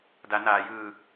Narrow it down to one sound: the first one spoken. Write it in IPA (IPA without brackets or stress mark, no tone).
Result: d